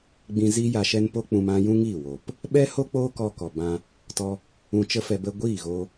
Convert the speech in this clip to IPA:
ɡ͡bĩ˧ ziː˦ja˧ʃɛ˦npo˦ k͡pũ˧mã˦ jũ˦ŋiː˦˨ woː˨p | ɓɛ˦ho˦ k͡poː˦kɔ˧kɔ˨ bã˧ | tɔ˧ | ũ˧t͡ʃə˦fɛ˧ bə˧ɡʷiː˦˨ɣoː˧

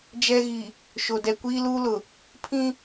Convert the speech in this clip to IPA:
d͡ʒɛ˦ɣi˨ | ʃo˨ dɛ˨ kʷiː˦luː˦lʊ˨ | pʰĩ˦

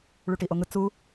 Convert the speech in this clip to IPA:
ɭuʈiʔoŋɯ t͡su

